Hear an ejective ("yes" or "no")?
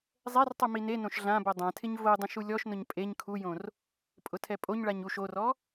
yes